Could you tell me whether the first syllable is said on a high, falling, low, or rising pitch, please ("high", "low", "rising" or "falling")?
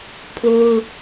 high